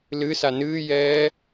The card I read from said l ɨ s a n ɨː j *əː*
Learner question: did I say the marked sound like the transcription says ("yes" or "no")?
no